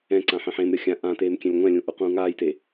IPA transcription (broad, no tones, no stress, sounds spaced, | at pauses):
ɛ̃ ǀ ã ħ ẽ ħ ẽ m ɾʲ ɤ xʲ ã ʔ ã t eː m kʲ ɛ̃ lʲ ŋʷ ɛ̃ lʲ ũ ʔ u q ũː ŋ aː j t e